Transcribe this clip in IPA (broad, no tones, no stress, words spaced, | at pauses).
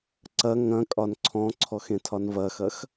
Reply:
ǀɐ ŋɐ̃ kʼɒnǀʰɔ̃ǀʰɔx ẽtʰɒnvɐxɐx